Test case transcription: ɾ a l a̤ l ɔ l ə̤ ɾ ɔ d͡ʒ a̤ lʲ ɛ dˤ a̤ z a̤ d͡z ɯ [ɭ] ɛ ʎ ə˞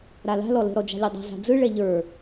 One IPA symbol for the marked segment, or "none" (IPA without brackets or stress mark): ɭ